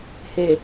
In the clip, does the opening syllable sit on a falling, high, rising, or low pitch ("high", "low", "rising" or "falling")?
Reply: low